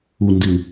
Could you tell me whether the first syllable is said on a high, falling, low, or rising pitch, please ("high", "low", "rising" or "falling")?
low